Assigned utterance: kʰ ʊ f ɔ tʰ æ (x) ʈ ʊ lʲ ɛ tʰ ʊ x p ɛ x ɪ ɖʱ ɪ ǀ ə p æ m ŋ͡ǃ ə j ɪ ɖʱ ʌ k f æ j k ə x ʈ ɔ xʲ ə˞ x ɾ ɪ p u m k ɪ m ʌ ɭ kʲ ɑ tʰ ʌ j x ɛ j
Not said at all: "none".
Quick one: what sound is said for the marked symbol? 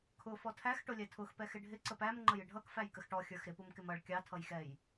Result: x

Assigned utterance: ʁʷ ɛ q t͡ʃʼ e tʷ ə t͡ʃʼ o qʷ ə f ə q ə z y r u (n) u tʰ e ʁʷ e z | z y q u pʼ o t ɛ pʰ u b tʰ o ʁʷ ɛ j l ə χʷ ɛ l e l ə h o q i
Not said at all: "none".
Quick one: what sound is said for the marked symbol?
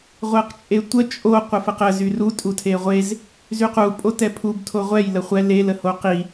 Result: tʼ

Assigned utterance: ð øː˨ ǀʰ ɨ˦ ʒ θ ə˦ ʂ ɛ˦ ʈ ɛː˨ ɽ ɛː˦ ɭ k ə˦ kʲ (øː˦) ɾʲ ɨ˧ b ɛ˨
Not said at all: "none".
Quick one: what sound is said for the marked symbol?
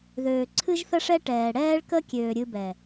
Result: øː˨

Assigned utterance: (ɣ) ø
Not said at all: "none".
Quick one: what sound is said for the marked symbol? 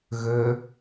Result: ɣ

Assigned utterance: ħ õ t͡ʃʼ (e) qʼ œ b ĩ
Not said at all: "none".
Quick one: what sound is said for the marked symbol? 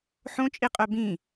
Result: i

